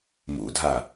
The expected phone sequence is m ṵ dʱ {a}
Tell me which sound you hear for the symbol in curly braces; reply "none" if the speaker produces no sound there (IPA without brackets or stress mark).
a